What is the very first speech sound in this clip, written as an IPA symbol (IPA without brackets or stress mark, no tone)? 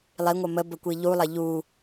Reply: lˠ